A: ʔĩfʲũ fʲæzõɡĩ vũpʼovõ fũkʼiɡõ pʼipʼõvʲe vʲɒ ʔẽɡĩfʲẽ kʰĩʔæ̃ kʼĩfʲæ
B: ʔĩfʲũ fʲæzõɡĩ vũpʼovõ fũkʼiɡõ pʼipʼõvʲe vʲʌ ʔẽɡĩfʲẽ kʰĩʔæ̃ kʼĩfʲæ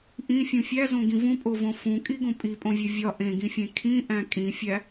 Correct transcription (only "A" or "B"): A